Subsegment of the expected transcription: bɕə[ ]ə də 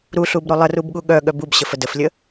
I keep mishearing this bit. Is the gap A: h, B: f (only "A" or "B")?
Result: B